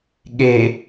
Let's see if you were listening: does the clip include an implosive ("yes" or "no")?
yes